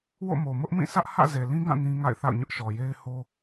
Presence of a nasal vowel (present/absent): present